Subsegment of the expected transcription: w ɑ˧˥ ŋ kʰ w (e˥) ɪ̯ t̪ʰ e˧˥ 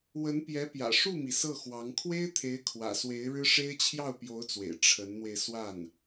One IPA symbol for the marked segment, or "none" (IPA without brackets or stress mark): e˥